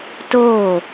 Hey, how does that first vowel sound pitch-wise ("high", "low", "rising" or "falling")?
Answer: falling